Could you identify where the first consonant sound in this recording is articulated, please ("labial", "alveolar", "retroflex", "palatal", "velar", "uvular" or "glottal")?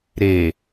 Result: alveolar